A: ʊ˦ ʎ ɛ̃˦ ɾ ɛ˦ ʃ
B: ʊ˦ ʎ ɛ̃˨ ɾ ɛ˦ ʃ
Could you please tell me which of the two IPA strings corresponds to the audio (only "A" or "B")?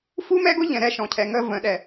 B